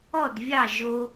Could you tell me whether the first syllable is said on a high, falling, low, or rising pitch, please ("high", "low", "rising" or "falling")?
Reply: falling